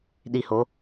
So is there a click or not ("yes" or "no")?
no